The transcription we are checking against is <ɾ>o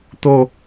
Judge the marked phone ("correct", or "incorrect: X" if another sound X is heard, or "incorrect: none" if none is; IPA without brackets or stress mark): incorrect: t̪